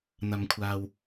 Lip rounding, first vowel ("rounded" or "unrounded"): unrounded